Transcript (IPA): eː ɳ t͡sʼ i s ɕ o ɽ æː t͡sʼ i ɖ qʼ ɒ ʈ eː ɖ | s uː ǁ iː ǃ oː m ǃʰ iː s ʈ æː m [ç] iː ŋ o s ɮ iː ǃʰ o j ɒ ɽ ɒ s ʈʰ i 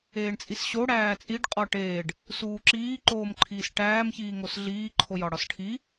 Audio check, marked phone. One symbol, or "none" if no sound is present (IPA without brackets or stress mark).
ç